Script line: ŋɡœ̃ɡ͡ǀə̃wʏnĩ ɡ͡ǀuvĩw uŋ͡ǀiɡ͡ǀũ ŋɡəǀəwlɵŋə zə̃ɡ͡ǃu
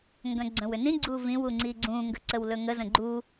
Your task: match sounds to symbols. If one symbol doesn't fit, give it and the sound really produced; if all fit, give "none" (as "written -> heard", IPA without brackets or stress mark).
none